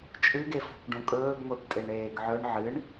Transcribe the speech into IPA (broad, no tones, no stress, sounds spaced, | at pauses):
t͡ʃʼ ɨ ɡ e f o̤ kʷ ɖ ũ kʼ ɵː ɡ ŋʷ e p tʼ e ɳ eː ɡ ʕ ɵ ɳ ʕ ɨ ɳ